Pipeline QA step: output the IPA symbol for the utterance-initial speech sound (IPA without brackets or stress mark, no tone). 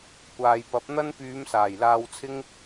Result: kʷ